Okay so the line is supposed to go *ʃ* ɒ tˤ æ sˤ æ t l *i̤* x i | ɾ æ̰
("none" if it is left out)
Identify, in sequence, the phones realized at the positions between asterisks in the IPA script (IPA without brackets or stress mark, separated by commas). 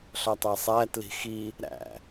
ɬ, i̤